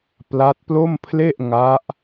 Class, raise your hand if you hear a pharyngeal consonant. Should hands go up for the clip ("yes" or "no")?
no